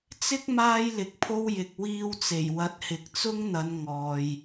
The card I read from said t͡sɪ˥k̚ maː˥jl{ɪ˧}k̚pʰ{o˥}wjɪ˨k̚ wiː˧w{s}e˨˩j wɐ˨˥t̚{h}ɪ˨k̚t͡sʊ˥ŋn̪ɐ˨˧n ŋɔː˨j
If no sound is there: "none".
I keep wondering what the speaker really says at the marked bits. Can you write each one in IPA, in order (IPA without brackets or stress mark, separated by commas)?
ɪ˨˥, o˥, t͡s, h